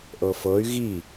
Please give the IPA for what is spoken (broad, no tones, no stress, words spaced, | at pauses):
ʔɤfɤy̯ ɣi